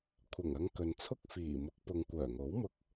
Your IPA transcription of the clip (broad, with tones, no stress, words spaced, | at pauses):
kʷʰɐ˨˩ŋɐ˨˧ŋ kɵ˨nt͡sʰʊ˥k̚ fiː˨˩mʊ˨˥k̚pʊ˨ŋ kʷœː˨˩ŋo˨˥wmʊ˧k̚